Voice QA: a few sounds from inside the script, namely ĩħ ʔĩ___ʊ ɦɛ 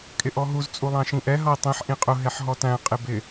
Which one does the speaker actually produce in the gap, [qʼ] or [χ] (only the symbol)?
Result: qʼ